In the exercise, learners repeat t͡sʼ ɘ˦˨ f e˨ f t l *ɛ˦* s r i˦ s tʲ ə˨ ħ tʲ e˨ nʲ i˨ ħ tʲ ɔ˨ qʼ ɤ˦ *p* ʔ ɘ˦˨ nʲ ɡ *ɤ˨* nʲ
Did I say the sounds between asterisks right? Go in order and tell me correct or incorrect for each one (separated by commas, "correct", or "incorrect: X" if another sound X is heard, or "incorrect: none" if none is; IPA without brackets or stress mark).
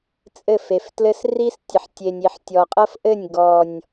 incorrect: ɘ˦, incorrect: f, incorrect: ɔ˨